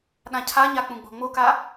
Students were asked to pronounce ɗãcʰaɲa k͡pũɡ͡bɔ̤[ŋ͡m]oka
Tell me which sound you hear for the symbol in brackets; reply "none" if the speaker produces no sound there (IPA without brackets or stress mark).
ŋ͡m